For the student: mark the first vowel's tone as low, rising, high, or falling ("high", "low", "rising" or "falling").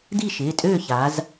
falling